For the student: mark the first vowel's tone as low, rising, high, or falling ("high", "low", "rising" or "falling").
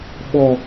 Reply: high